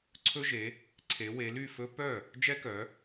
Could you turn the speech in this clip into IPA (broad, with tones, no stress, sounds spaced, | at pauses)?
ǀʰ ɵ˦ ʒ e˨˦ | ǀʰ e˨˦ w e˨˦ l y˥˩ f ɵ˦ p œ˥˩ | d͡ʒ ɛ˦ k œ˨˦